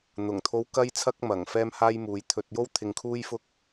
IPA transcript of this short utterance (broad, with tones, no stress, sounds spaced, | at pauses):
n̪ ʊ˨˩ ŋ t̪ʰ o˨˧ w k ɐ˧ j t͡sʰ ɐ˧ k̚ m ɐ˨˩ ŋ f ɛː˥ m h aː˥ j m uː˨˧ j t̪ʰ ɵ˧ t̚ j o˥ w t̪ʰ ɪ˧ ŋ kʰ uː˥ j f ʊ˥ k̚